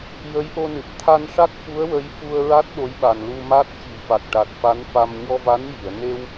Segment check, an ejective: absent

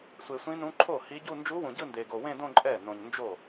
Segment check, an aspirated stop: present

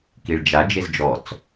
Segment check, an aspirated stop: absent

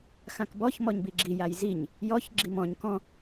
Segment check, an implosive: absent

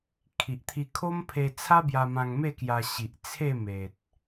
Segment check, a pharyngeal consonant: absent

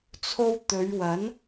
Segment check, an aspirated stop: present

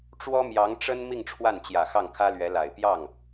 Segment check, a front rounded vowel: absent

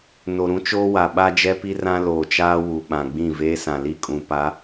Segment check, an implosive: present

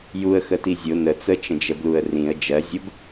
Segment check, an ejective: absent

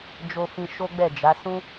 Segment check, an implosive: absent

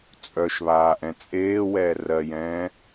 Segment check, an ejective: present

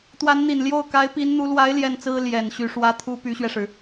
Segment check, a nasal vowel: absent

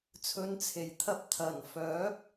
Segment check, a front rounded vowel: present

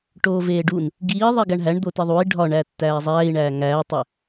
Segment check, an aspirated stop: absent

